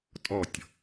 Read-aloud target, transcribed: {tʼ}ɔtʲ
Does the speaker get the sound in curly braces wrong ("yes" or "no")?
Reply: no